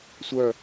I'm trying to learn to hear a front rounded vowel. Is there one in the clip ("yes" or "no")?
yes